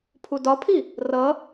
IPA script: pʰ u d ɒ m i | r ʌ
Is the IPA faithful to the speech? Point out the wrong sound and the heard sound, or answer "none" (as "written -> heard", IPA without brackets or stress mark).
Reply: m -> pʰ